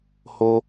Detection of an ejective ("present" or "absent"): absent